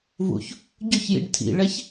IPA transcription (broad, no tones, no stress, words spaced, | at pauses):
vṵç | ɟɵçjḭɖ tʰḭɭɛç